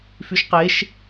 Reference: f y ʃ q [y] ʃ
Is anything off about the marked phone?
yes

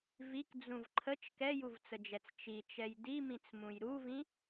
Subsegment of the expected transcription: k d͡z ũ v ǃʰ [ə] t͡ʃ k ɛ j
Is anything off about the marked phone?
no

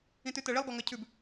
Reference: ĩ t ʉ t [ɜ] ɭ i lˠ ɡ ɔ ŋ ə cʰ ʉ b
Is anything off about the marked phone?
no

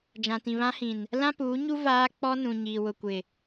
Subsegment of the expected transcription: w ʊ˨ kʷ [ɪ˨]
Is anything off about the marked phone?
no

